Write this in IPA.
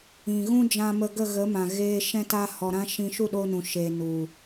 ĩ˨ɣũ˦ d͡ʒã˧mə˧ɡə˦˨ɣə˨˦ mã˨ɣeː˧ ʃɛ̃˦ta˦hɔ˧ ɾã˦ ʃĩ˧ ʃu˦˨ɗo˧nũ˨ ʃeː˨nu˨

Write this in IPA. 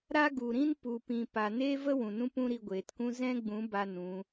ɾa˦ɡu˨ɾĩ˦n pu˨pĩ˨ pa˨neː˦və˦ wũ˨nũ˦pũ˦ ɾi˧ɡʷeː˨tkũ˦ zɛ̃˦ɡ͡bũ˨˦ ba˦nũ˨˦

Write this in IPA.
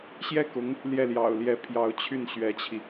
ɕjɛ˥˩ kʊ˧˥ŋ | ljɛ˥˩ljɑ̰˨˩ʊ̯ljɛ˧˥ pʰjɑ˧˥ʊ̯t͡ɕʰy˥˩nɕɥɛ˧˥t͡ɕʰi˧

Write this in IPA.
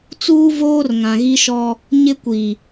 t͡suː˦voː˦r ŋã˨ɣi˦ʃɔ˦ | ɲɪ˦ kʷi˨

